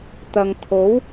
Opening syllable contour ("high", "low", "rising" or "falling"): low